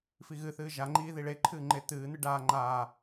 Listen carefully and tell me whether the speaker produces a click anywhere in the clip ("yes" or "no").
yes